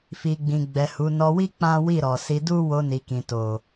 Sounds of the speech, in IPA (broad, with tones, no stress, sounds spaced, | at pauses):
f i˨ ɡ͡b ĩ˨ ɡ͡b ɛ˨ h u˨˦ n ɔ˧ w i˦ k͡p ã˦ w i˦˨ ɾ ɔ˨ s i˧ d u˦ w o˧ n i˨ k ĩ˨ t o˨